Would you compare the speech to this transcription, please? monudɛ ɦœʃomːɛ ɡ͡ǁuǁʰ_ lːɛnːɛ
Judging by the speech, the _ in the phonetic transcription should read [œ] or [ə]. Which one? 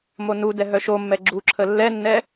ə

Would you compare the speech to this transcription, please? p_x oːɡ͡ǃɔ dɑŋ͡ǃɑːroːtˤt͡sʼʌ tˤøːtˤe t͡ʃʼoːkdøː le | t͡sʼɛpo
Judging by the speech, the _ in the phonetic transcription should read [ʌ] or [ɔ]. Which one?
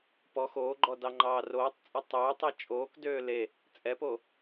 ɔ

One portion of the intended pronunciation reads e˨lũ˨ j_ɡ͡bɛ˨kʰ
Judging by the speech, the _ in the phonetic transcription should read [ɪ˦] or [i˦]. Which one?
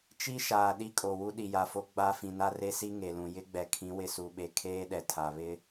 ɪ˦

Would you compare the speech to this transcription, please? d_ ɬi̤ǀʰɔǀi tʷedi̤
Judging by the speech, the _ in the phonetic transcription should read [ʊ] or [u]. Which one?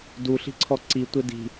u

